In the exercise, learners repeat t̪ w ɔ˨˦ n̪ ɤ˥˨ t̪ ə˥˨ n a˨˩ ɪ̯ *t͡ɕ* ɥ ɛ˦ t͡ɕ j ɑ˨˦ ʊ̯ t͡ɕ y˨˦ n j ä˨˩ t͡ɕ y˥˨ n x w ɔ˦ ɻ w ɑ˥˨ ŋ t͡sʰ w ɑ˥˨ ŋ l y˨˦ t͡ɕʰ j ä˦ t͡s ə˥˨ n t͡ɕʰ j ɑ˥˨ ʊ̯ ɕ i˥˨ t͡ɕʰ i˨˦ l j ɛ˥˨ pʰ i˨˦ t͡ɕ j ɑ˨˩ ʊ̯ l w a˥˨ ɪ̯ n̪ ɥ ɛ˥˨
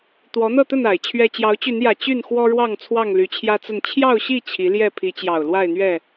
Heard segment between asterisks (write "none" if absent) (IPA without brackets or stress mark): t͡ɕʰ